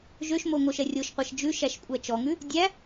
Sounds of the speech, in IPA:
ʒ ø ʃ m o ŋ o ʃ ɛ rʲ o ʃ qʷ æ ʃ d͡ʒ ʉ ʃ æ ʃ kʷʼ æ t͡ʃ ɔ ŋ ʉ | dʲ æ

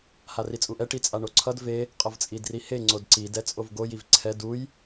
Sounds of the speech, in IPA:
h a r i t͡sʼ u ʔ ɛ ʈ i t͡sʼ a ɳ o ǀʰ ʌ d v e | qʼ ʌ v t͡sʼ i d r i h e ŋ͡ǀ o d ǀ i d ɛ t͡sʼ o v ɡ o j i v ǀʰ ɛ d u j

